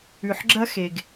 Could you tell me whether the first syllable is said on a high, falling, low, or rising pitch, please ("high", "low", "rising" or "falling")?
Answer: low